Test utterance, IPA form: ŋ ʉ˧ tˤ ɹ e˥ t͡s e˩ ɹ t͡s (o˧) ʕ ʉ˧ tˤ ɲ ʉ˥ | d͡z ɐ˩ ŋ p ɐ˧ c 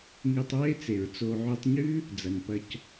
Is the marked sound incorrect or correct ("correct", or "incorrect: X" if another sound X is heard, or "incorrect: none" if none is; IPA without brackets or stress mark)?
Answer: correct